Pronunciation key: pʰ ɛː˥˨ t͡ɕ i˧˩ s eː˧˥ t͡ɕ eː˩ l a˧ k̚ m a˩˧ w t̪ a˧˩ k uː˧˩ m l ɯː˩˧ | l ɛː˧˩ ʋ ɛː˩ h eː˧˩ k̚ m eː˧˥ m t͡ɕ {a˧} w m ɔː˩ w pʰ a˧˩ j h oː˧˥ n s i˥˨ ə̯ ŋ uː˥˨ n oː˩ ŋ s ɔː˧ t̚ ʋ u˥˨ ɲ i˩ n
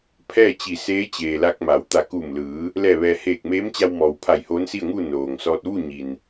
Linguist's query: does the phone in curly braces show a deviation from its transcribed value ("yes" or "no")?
no